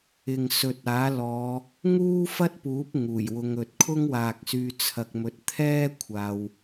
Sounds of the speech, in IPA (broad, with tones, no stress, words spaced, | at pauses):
ɪ˨ŋ sɵ˨t̚aː˨˥lɔː˨˧ | ŋuː˥fɐ˥t̚puː˨˥p̚ ŋuː˨˩jwʊ˨˧ŋɵ˨t̚ kʰʊ˥ŋwaː˨k̚syː˧ t͡sʰɐ˧k̚mɵ˧t̚ t̪ʰɛː˥ kʷʰaː˧w